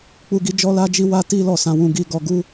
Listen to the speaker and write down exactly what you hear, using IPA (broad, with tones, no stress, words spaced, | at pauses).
k͡pu˦ɡi˦ d͡ʒɔ˦la˦d͡ʒi˦ wa˦ti˦ lɔ˦˨sã˧wũ˧ɡi˧ ɡɔ˧ɡu˦